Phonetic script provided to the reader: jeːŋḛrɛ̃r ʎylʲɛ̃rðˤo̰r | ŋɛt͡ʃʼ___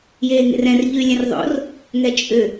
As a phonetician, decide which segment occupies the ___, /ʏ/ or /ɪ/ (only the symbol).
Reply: ʏ